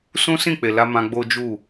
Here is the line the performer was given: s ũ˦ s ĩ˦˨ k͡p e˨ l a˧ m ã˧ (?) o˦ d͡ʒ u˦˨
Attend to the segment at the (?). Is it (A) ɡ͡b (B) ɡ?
A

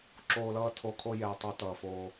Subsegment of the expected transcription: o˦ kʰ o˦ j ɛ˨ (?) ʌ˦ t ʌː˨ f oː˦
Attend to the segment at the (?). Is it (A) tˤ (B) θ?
A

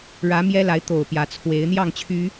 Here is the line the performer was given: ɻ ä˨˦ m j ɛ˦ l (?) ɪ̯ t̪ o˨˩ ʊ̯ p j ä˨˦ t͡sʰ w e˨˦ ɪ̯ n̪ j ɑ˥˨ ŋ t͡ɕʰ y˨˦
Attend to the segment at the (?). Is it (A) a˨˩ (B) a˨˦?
B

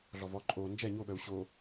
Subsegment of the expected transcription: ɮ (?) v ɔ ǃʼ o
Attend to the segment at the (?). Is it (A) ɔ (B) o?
A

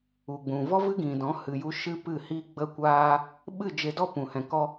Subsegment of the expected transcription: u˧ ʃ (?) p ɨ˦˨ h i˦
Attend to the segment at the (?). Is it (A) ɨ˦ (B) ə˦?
A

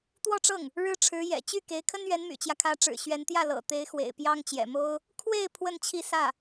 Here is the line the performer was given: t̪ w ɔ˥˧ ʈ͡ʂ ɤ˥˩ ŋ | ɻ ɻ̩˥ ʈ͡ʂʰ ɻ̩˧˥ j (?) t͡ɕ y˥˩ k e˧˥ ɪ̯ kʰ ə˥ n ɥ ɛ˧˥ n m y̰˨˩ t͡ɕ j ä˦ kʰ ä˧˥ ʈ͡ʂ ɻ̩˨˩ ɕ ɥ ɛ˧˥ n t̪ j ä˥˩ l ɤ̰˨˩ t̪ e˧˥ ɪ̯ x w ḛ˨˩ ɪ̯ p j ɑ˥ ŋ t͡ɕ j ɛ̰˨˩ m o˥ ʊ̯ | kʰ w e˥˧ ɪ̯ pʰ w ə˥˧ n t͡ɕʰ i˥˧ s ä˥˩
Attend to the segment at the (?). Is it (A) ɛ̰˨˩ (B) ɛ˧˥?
A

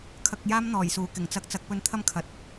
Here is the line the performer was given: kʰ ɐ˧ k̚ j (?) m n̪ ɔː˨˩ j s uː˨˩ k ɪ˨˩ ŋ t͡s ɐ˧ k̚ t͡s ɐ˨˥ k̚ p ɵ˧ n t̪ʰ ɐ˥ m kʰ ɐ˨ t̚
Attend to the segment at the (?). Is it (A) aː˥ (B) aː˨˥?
A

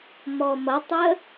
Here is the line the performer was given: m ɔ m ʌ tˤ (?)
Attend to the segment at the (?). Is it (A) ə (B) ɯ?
A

